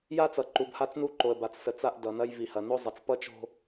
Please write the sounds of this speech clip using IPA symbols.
j a˦ t͡s ʌ˨ ǃ u˨ b h a˦ t͡s n u˦ ǃ o˨ ə̯ b a˨ t͡s s ə˨ t͡s a˦ ʔ d ʌ˨ n ɐ˦ j v i˨ h ɐ˨ n o˦ zˤ ʌ˨ t͡s p ʌ˦ t͡ʃ o̤˦

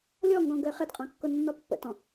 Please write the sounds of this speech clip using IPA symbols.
lʲ ɔ ŋ ɡ ɔ̃ ɡ ə ɪ̯ χ ɪ d qʼ ɑ̃ kː ʊ nː ɔ pː ə̰ t ɔ̃

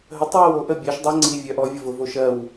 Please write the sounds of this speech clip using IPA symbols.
ɦ ə tˤ w ɜ w o ʔ ə bʲ ɜ ʃ dˤ ʌ ŋ͡ǀ i vʲ œ ʔ ɔ vʲ ʌ v ʊ v o ʃ ɜ w

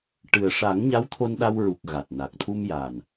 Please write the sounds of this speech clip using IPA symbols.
ʈ ɨ˨˩ ə̯ ʂ a˨˩˦ ŋ ɲ a˧˥ w t̪ʰ o˧ n ɗ a˧ w ɹ u˨˩ k̚ ɣ a˨˩ t̚ n a˨˩ k̚ t̪ʰ u˧ m j a˨˩ n

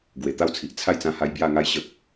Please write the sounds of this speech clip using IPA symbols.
ɡ w e˨˩ t̪ a˦ w t͡sʰ i˨ ʔ t͡sʰ a˥˧ j t͡s ã˧ h a˧ j b j a˥˧ ŋ a˦ j ɕ ə˦ k̚

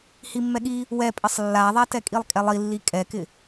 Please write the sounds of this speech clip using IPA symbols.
h i mː ɛ ɠ i | w ɛ pʼ ɪ sˤ lː a ðˤ ɛ t ɛ kʼ i lˠ kʼ ɛ lˠ i lː i kʼ ɛ k ɪ

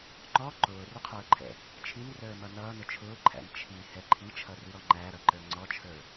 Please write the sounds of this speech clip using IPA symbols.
ŋ͡ǃ ɔ ǃ ʊː r ʊ qʰ ʊː ǃʰ ɛ̰ | t͡ʃʰ i n r əː m ʌ n ʌː n ʊ t͡ʃʰ ʊː ǃʰ æ̰ n t͡ʃʰ i h ɛ ǃʰ i t͡ʃʰ ʌ r i ɾ ɔ ŋ͡ǃ æ ɾ ʌ ǃ ə˞ ŋ͡ǀ ɔ t͡ʃʰ ə˞

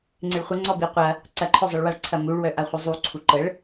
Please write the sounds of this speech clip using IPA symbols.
ŋ͡ǀ ɪ ɭ χʷ ɪ ŋ͡ǀ ɔ b i qʷ ɐ | ǀ ɐ ǃʰ œ zˤ i ɭ w a ɭ ǀʰ ɐ m u ɭ w œ ʔ a χʷ ə zˤ u ǀʰ u ǃ ə ɭ

